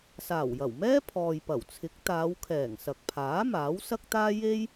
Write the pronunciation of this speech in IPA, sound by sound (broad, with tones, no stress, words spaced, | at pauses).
saː˨˩wjɐ˨˩wmɛː˥ pʰɔː˨j pɐ˨˩wt͡sʰɪ˨˥k̚ t̪aː˨˧wkʰɛː˨˩ŋsɐ˨k̚pʰaː˨˥ maː˨˥wsɐ˥k̚t̪aː˥ je˥j